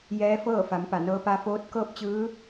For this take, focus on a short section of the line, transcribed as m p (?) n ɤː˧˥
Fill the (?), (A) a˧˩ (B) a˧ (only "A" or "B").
A